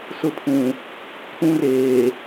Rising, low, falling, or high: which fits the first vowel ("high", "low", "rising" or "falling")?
high